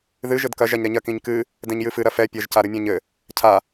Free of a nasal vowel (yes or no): no